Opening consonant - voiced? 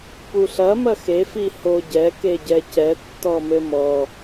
no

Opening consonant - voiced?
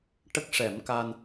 no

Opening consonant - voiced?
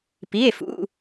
no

